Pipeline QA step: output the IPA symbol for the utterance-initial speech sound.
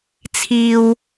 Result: t͡sʰ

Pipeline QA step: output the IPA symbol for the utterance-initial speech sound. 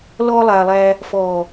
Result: l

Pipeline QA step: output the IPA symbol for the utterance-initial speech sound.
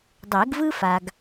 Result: dˤ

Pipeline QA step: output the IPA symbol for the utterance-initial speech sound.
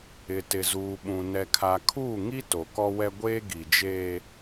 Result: ɪ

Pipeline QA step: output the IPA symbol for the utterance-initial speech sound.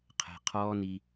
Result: qʰ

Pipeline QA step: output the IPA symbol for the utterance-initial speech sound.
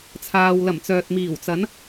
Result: t͡sʰ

